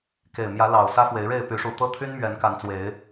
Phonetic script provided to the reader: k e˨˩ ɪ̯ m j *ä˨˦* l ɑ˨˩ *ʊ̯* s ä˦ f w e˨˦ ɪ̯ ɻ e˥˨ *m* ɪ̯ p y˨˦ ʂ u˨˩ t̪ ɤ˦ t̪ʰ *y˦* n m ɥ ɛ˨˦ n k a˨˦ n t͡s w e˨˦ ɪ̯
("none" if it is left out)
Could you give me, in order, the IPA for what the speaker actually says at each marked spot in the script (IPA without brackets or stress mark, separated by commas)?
ä˨˦, ʊ̯, none, y˦